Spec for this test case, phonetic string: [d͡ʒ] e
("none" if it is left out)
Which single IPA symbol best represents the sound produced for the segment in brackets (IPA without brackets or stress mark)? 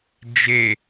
d͡ʒ